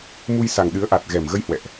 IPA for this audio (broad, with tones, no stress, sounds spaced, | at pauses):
m u˧ j s a˨˩ ŋ ɗ ɨ˨˦ ə̯ ʔ a˨˩ t̚ ɣ ɛ˨˩ m ɣ ə˧ j h w ɛ̰˧˨ ʔ